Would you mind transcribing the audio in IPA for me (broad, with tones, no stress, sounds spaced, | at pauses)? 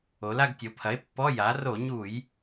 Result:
o˩˧ l a˦˨ ɡ tʲ o˩˧ pʰ ɐ˩˥ e̯ pː ɔ˧˥˧ j a˩˥ r o˧˩˧ ɲ u˧˩˧ j